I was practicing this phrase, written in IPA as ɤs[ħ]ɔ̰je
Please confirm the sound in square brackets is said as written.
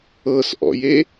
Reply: no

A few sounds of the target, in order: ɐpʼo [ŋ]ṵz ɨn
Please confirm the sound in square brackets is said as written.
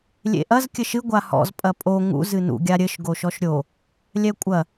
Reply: yes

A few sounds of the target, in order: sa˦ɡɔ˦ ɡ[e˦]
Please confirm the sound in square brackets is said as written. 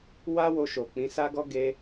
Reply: yes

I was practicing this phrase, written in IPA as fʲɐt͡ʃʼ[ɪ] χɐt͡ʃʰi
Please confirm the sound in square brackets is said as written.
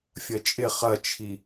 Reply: yes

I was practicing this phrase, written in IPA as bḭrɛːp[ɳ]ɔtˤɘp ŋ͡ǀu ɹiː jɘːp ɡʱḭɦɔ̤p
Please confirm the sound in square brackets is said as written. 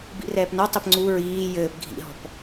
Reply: no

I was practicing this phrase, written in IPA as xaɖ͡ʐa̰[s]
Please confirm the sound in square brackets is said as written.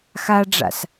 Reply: yes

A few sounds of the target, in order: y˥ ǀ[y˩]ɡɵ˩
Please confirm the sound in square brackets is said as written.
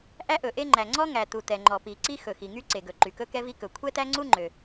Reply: no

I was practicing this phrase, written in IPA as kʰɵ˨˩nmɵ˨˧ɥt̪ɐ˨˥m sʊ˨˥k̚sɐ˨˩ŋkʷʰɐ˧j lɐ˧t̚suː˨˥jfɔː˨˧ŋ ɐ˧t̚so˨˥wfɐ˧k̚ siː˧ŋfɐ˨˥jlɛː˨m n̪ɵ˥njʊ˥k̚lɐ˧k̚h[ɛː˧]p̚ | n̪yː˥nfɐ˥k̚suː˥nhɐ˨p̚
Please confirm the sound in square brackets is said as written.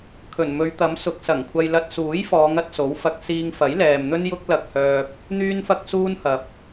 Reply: no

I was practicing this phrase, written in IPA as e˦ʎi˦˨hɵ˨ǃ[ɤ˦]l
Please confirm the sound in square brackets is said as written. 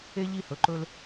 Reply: no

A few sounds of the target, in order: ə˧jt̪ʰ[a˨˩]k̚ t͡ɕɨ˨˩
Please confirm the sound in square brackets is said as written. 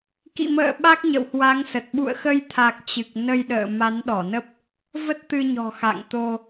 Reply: yes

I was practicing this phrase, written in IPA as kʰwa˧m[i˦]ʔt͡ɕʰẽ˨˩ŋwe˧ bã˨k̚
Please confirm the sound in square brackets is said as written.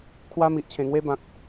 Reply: no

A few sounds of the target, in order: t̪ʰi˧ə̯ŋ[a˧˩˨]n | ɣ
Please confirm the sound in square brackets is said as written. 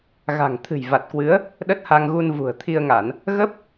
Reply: yes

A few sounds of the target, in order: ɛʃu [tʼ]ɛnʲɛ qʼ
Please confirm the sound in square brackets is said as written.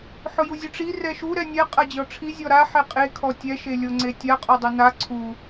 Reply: no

